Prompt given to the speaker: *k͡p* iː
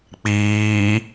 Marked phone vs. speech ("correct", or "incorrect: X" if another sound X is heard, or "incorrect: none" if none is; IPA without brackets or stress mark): correct